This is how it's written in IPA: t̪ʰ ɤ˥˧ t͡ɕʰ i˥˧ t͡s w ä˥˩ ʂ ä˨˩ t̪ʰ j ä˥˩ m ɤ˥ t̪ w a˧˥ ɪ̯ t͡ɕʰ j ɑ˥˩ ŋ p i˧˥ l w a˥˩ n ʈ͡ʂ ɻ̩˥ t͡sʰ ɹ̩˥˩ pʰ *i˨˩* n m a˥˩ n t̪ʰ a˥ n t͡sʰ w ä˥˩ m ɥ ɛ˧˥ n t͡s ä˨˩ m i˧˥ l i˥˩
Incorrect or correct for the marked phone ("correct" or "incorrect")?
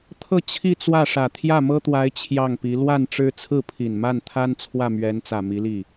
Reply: correct